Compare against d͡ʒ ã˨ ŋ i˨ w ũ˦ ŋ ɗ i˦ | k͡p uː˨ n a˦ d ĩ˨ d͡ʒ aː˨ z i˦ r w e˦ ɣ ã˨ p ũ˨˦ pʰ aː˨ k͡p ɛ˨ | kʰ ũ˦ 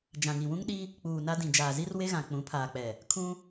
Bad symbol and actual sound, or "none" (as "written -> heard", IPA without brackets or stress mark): p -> k͡p